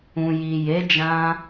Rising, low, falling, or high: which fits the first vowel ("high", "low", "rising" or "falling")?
low